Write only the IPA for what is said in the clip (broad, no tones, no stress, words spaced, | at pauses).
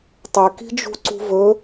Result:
tˤe ki̤d͡ʒṳǀṳvɵ